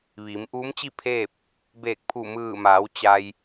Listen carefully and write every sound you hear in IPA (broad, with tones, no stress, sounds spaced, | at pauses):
ʋ iː˩˧ m ʔ uː˧˥ m t͡ɕ i˥˨ pʰ eː˥˨ p̚ | b eː˧˩ k̚ pʰ u˧˩ m ɯː˧˩ m aː˩˧ w t͡ɕ a˧ j